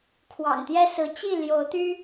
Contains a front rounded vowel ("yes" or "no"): yes